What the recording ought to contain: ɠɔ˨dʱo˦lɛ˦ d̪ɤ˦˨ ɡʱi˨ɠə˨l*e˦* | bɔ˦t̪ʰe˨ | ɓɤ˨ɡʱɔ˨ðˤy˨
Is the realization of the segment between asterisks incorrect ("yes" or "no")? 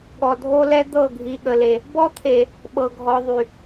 yes